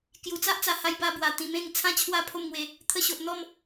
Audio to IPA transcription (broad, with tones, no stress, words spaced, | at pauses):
kju˨˩t͡sa˦ʔt͡sa˨˩ha˧j ba˧bwa˨˩ t̪ĩ˧mẽ˥˧ŋ t͡sʰã˥˧t͡ɕʰwa˦ pʰo˥˧mŋwe˧ | t̪ʰə˧ɕo˨ʔn̪ɔ˥˧m